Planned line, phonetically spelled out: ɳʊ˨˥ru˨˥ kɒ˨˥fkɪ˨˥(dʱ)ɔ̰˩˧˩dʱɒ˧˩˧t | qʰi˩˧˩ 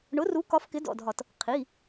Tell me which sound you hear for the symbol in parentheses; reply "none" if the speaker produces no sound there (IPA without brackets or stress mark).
d